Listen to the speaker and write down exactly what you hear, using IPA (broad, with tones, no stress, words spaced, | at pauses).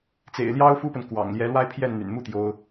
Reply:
t͡sḛ˨˩ɪ̯ljɑ˥ʊ̯fu˥pə˨n kwɑ̰˨˩ŋljɛ˧˥lwa˥ɪ̯ pʰjɛ˥˩nn̪y̰˨˩nmu˥ t̪jo˥ʊ̯